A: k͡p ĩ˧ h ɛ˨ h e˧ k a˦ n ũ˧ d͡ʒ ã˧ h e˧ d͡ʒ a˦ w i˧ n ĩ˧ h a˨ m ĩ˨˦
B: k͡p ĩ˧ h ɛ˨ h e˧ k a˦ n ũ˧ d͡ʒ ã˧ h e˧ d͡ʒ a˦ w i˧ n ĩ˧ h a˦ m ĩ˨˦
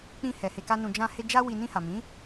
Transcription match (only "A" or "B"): A